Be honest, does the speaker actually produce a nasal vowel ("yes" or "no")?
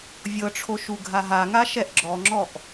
no